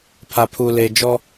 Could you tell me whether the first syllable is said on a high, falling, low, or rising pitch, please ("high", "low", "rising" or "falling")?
low